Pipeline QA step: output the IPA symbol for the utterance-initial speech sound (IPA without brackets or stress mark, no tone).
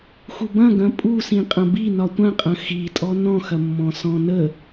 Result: x